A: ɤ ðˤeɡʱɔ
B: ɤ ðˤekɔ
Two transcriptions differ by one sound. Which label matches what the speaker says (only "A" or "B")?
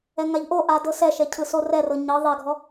A